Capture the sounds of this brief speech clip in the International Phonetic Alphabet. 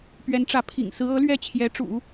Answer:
p ɥ ɛ˧˥ n ʈ͡ʂ ä˧˥ pʰ ḭ˨˩ ŋ s ɹ̩˧˥ ɤ˧˥ l ɥ ɛ˥˩ t͡ɕʰ j ɛ˧˥ ʈ͡ʂ ṵ˨˩˦

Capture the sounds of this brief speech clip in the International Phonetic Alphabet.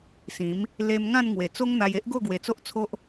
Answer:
s ĩ˨˦ m | l e˧ m ŋ ã˥˧ n ŋ w e˨˩ t͡s o˦ ŋ n̪ a˧ j e˦ ʔ ɡ o˥˧ ɡ w e˨˩ t͡s o˦ ʔ t͡sʰ o˦ ʔ

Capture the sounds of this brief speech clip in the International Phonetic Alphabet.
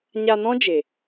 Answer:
ɲ a˧ n ɔ̃˦ d͡ʒ e˨

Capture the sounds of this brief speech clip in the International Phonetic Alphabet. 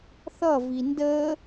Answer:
θ ʌ v i n d ə

